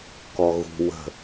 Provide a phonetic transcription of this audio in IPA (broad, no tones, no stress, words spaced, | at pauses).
kɔɣṳ wə̤